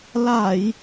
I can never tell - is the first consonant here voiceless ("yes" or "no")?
no